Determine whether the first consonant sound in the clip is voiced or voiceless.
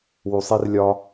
voiced